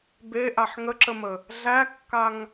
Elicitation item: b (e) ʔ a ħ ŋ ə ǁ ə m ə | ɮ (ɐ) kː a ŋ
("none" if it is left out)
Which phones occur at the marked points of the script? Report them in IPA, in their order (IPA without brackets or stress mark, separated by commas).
e, æ